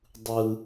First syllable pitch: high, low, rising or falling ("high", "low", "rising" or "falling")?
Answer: high